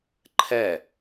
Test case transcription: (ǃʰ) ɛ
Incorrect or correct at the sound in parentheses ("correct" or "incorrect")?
correct